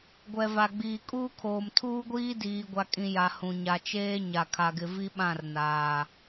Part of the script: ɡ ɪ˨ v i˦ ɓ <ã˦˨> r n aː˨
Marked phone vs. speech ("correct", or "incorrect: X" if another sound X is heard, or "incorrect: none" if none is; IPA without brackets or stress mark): correct